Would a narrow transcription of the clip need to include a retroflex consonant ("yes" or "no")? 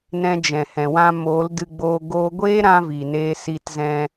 no